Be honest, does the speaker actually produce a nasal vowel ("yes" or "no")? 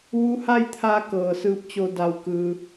no